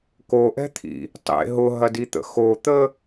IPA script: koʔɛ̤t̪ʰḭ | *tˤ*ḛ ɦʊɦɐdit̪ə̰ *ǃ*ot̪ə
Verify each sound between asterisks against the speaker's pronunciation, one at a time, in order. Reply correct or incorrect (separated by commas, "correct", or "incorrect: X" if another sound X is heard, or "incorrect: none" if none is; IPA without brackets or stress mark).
correct, incorrect: x